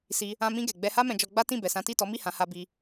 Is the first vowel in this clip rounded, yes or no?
no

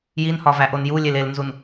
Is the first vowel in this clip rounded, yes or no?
no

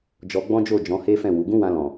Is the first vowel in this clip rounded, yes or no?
yes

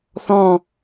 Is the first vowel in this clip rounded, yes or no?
yes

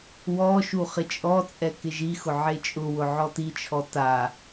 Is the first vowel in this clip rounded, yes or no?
yes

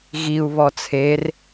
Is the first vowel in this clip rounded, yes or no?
no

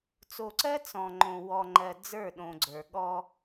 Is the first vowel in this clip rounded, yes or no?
yes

